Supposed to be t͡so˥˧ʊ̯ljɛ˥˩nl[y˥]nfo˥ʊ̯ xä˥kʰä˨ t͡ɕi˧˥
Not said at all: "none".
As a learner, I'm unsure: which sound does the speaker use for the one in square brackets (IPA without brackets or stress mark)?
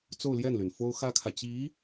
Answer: y˩